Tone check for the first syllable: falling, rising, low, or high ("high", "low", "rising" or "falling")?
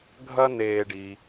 high